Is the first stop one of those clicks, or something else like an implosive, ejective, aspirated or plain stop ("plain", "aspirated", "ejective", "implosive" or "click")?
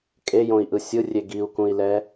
ejective